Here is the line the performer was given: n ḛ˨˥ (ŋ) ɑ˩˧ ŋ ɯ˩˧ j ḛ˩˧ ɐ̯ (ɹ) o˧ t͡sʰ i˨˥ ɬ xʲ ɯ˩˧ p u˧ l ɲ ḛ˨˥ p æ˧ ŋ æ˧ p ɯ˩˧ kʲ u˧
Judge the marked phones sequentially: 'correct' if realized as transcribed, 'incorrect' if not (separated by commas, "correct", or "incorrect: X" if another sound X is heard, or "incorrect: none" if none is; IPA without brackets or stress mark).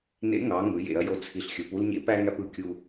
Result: correct, incorrect: j